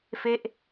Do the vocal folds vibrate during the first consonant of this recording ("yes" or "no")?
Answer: no